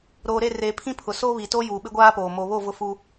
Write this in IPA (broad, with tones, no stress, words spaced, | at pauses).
ɾoː˨ ɾe˦˨reː˨pʰĩ˦ pʰʊ˨soː˦βi˨to˦ juː˨ɓɪ˦ɡʷaː˦poː˨ mo˨βo˦˨ vʊ˦fu˦